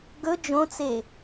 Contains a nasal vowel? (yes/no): yes